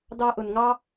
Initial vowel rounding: unrounded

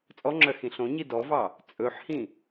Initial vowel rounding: rounded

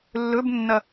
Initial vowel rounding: rounded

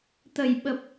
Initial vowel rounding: unrounded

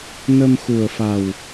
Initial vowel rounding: unrounded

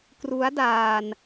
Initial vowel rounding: rounded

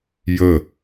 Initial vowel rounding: unrounded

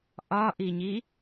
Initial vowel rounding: rounded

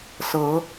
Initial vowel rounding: unrounded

